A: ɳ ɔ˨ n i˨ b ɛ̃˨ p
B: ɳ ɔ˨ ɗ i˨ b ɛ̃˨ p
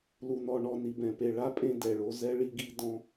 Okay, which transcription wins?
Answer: A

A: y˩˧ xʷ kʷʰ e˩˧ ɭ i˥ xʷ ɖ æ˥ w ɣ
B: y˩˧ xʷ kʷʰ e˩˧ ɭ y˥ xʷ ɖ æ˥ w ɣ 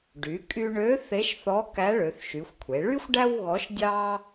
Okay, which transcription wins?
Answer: B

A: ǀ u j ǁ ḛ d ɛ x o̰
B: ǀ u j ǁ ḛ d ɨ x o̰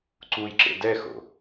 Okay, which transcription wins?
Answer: A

